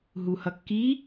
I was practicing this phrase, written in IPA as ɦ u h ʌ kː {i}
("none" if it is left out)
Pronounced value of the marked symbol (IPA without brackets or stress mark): i